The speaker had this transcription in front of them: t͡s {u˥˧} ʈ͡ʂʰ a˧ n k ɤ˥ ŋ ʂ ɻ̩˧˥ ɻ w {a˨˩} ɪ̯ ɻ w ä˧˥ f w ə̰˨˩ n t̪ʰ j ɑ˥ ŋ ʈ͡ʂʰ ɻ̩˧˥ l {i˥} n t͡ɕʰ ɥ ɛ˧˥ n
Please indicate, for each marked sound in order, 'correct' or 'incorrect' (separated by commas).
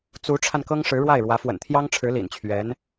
incorrect, incorrect, incorrect